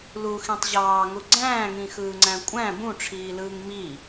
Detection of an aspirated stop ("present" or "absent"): present